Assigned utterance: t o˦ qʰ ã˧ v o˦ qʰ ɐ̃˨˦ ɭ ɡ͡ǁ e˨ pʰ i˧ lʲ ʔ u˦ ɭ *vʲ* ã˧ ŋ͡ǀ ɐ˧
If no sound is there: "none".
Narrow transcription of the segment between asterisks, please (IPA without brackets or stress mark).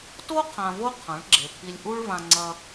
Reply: v